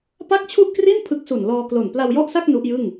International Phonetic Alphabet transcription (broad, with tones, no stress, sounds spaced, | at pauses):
p a˥˩ k̚ t͡ɕʰ u˥˩ ʔ k r i˥˩ n pʰ ɯ˦˥ k̚ s u˨˩ n l ɔː˧ k l o˨˩ n p l a˧ w j ɔ˥˩ ʔ s a˥˩ k̚ n u˦˥ ʔ j ɯ˥˩ ŋ